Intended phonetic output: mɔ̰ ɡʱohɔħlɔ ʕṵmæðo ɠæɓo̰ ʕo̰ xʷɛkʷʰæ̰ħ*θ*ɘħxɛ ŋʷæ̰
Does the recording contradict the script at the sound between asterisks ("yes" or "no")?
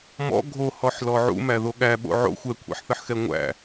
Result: no